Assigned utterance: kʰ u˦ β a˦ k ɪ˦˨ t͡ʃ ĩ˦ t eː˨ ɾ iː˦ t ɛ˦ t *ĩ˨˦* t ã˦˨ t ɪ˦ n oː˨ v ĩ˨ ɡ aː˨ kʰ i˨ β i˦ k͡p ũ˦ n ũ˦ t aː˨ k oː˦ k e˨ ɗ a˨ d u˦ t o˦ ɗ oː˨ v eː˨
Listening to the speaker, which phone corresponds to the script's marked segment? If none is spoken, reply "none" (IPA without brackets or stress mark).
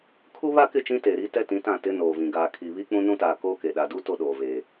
ĩ˨˦